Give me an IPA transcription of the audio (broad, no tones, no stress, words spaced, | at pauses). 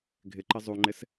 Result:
ɡʱɪǃɪ zˤuŋ͡ǃɪs